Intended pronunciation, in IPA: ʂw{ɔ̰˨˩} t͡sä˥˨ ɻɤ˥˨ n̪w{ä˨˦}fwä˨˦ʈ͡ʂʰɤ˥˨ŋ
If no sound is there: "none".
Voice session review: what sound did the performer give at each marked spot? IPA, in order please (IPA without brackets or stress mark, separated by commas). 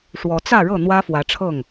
ɔ˨˦, ä˦